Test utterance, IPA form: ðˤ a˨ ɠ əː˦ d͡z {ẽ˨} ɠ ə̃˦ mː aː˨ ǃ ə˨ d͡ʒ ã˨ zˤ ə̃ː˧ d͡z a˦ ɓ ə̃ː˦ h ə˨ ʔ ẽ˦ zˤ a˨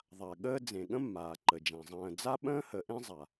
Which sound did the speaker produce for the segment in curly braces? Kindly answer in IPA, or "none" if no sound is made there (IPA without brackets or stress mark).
ẽ˨